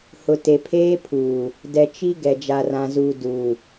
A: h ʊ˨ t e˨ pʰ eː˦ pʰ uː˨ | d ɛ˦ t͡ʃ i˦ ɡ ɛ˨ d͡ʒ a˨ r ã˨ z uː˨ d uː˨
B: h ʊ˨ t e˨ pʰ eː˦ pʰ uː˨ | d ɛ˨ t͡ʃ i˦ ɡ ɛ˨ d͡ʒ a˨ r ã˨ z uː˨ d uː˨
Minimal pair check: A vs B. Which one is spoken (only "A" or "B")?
B